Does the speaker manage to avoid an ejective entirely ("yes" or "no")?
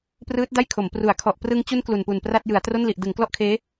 yes